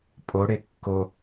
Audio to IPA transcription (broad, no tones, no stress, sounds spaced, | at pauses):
pʼ o ɽ e kː o